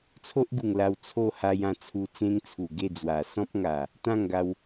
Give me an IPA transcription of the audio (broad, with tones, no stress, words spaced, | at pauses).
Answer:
t͡sʰo˦ʔɡu˨˩ŋ la˧w t͡sʰo˥˧ ha˧jã˧ t͡sʰu˧t͡sẽ˦ŋt͡sʰu˨˩ ɡe˥˧d͡zwa˨˩ sɔ̃˦p̚ŋa˨˩ | t̪ã˥˧ŋɡa˧w